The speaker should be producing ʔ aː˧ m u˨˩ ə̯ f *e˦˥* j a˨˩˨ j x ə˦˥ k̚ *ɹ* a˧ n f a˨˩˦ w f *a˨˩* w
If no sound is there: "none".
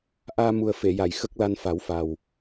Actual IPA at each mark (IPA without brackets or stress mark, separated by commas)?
e˨˩˨, l, a˨˩